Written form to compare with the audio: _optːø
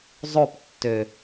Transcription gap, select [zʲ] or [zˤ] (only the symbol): zˤ